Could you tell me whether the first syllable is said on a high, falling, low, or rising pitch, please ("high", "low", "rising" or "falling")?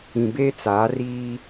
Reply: low